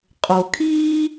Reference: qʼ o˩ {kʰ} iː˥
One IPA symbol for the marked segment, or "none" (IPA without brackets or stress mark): kʰ